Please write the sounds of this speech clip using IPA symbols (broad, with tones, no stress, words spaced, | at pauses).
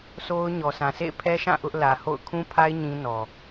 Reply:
so˦ʊ̯ ɲɔ˨ sã˨sḛ˦˨ɪ̯ pʰɛ˦ʃã˦˨ ʔʊ˦ʔ lä˨ho̰˦˨ʊ̯ kʰũ˦pʰa˦ɪ̯ ɲĩ˦nɔ˨